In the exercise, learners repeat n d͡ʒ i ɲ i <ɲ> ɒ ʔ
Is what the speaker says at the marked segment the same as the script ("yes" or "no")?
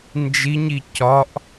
no